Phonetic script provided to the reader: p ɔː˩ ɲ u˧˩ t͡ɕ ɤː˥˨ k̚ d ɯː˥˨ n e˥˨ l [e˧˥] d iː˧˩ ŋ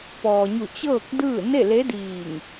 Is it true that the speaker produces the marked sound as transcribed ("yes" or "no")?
yes